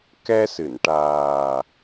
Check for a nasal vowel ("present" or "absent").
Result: absent